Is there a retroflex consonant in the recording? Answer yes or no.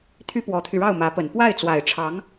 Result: yes